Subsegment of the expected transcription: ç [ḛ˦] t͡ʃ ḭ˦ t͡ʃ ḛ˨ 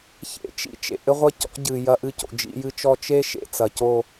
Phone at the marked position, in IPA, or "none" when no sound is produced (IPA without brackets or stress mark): ḛ˦